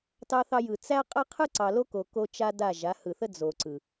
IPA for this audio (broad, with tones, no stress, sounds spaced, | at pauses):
t ɑ˦ θ ɑ˦ j ɯ˨ t͡s æ˦ qʼ ə˦ qʰ ɯ˦ ǀ ɑ˨ l o˦ k o˨ k o˦ t͡ʃ a˦ d a˦˨ ʒ a˨˦ h ɯ˨ θ ə˦ d͡z o˨ ǀ ɯ˨